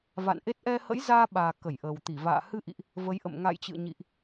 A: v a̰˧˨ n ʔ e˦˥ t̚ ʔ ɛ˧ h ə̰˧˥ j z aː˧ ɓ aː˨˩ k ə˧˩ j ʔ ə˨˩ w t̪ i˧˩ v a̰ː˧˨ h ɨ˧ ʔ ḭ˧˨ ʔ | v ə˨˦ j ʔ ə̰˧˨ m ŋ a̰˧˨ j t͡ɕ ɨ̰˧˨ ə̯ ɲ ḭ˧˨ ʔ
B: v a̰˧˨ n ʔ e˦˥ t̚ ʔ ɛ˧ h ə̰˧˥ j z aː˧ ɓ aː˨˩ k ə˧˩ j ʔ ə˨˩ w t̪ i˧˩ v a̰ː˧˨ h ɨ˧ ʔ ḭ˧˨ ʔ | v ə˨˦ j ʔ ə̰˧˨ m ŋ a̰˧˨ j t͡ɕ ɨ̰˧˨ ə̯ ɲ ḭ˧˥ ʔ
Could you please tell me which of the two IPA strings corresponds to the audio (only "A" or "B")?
A